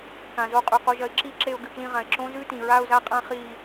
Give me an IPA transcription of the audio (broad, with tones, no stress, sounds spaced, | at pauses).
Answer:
k ã˩ z o˧ qʼ ʉ˩ q o˧ ʒ ɐ˧ ɪ̯ ǁ i˥˧ ǁ e˧ ʊ̯ ɡ ɨ˧˩ k l ĩ˧ ʁ ã˩ ɪ̯ ǁ õ˦˥ z ʉ˦˥ t ĩ˩ ɹ a˥˧ ʊ̯ z a˥˧ qʼ ã˥˧ χ i˥˧